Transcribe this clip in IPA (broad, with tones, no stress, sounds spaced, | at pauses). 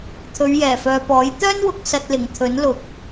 t̪ʰ ɵ˨˧ ɥ j ɛː˨˩ f œː˨ p ɔː˨˥ j t̪ œː˥ n w ʊ˨ k̚ s ɐ˧ t̚ l ɪ˨˩ ŋ t̪ʰ ɵ˨˥ n l ʊ˨˥ k̚